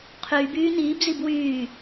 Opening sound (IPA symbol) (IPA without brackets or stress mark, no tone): qʰ